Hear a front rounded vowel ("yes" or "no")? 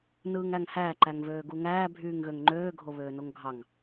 yes